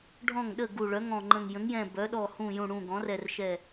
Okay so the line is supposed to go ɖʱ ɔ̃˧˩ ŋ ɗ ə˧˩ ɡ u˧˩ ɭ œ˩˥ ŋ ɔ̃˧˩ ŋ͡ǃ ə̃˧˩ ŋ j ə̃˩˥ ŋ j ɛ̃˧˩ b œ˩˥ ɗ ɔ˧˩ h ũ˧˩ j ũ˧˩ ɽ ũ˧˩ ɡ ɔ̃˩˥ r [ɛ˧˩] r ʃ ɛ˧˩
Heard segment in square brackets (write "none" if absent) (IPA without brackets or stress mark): ɛ˧˩